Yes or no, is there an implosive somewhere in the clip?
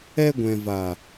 no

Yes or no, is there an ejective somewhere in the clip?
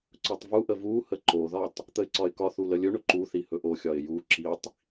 no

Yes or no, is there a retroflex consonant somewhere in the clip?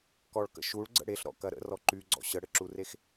yes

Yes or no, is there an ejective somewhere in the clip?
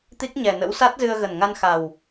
no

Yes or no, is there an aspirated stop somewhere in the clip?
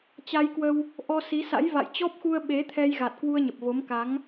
yes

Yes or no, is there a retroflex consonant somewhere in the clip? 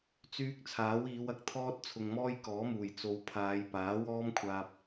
no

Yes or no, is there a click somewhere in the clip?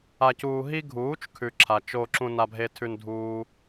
yes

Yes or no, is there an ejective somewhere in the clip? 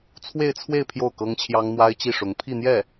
no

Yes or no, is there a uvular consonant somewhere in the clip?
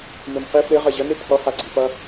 yes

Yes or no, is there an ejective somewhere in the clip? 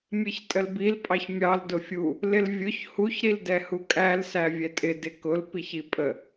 yes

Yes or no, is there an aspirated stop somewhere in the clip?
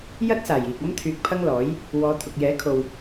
yes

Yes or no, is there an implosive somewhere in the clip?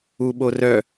yes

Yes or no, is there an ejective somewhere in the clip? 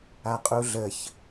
yes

